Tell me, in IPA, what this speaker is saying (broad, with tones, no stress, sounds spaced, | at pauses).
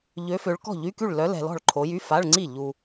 ʎ ø˨˦ f ø˨˦ ɭ k ɔ̤˥˩ ʎ y˧˥˧ k y˥˩ ɭ l œ˨˦ l ɛ̤˨ l ɔ̤˥˩ ɭ ǃʰ o˨˦ j y˧˥˧ f a˧˥˧ ɭ ŋ͡ǀ i˥˩ ʎ u˨